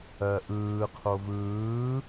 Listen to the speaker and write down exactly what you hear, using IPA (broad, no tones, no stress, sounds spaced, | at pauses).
ɜ ʔ ɯː qʰ o v ɯː